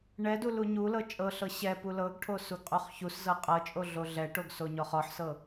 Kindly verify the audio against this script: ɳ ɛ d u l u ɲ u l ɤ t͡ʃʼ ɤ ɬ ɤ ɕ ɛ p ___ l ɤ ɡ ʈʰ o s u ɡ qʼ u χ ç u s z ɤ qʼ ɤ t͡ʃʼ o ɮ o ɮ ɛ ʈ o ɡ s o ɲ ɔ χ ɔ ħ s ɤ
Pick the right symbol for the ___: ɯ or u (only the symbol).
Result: u